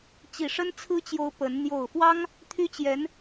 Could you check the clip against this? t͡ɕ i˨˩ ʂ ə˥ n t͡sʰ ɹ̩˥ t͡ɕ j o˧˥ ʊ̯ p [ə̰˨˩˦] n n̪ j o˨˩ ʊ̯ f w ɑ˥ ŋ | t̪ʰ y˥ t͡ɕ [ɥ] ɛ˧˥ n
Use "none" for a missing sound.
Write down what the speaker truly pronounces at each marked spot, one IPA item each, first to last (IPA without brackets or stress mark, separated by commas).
ə˧˥, j